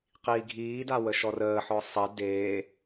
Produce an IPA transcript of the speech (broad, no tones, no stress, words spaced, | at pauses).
qiːɡʱiːda wəʃɔrəːħɔ sˤe deː